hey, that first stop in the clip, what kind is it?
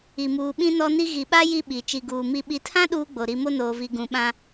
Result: implosive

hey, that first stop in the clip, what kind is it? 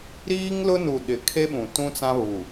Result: implosive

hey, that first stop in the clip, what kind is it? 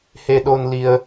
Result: implosive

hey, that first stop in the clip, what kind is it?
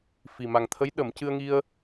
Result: aspirated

